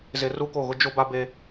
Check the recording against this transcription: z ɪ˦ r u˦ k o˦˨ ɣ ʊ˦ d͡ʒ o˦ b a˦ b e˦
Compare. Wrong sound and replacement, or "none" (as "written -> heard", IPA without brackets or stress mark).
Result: none